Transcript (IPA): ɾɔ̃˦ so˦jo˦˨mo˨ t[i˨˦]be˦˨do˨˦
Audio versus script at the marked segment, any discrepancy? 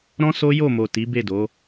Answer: no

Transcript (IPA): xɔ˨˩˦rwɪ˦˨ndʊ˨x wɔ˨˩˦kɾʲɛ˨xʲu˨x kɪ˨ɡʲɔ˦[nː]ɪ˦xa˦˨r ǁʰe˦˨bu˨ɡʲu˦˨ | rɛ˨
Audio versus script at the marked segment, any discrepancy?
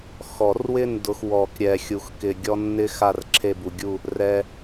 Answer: no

